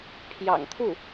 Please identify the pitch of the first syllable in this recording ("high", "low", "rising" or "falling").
low